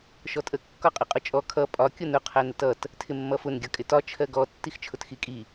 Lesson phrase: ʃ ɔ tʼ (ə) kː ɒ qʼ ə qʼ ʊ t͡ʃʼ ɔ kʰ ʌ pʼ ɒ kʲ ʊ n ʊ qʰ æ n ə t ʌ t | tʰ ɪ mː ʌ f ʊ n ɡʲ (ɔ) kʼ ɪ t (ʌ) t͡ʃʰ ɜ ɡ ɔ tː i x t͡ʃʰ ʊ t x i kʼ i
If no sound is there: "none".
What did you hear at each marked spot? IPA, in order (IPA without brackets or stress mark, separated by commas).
ə, ʌ, ɒ